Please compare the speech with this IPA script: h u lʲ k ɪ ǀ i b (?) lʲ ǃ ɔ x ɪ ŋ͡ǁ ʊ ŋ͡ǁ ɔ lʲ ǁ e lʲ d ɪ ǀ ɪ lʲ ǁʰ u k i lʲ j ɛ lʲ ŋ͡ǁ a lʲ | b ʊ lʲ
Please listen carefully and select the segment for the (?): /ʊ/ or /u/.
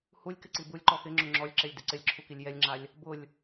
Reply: u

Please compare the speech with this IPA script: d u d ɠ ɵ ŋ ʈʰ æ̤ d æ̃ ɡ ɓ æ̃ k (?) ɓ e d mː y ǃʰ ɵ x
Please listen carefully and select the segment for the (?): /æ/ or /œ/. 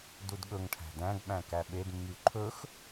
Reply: æ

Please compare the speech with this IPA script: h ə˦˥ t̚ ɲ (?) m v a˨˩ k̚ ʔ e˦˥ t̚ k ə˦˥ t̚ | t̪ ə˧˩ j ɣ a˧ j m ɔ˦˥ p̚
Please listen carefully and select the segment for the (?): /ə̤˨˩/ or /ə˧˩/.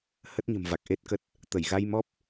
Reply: ə̤˨˩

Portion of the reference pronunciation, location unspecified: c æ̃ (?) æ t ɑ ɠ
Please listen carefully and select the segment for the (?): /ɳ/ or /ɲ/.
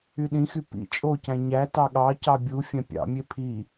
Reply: ɲ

